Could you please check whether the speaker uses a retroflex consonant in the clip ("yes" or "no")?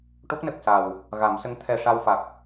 yes